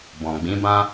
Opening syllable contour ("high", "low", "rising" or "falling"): low